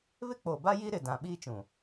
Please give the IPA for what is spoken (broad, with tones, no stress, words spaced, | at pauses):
βɪ˦k͡po˨ba˦ ji˦ɾɪ˨dã˨ ɓiː˦t͡ʃũ˨